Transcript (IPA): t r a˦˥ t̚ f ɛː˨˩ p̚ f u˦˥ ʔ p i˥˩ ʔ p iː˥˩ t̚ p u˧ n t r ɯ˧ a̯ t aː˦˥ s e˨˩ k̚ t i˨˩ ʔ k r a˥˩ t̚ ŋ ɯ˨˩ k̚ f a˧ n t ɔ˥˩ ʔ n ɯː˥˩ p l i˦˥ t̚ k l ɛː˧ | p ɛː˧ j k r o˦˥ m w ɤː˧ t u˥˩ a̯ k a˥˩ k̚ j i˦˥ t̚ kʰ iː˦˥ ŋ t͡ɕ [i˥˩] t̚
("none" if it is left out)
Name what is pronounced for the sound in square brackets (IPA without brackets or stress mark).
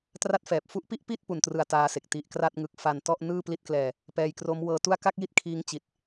i˦˥